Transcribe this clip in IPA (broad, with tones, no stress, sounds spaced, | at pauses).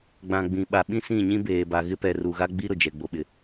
ɡ͡b ã˨ ɡ͡b ĩ˨ ɓ a˨ ɓ ĩ˦ s ĩ˦˨ ɲ ĩ˦ b eː˨ b a˨ ɣ ɪ˦ p ɛ˨ r u˨ ɣ a˦ ɡ͡b i˦ ɾ ʊ˨ d͡ʒ ɛ˨ ɡ͡b o˨ ɓ ɪ˨